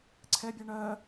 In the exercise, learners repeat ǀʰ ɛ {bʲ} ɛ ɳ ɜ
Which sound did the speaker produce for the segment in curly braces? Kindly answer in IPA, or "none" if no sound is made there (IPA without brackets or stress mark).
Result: bʲ